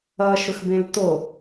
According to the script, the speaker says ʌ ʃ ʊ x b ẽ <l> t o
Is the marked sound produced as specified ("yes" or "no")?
yes